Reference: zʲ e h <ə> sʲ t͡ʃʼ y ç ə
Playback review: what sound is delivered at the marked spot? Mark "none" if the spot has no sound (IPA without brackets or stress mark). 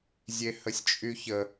ə